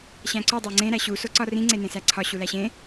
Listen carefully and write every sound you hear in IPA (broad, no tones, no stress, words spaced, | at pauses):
ɕæ̃ǀu dˤoŋ͡ǀẽ ɾæɕu soǀɒrĩ ŋ͡ǀenẽsæǀʰɒ ɕulæɕẽ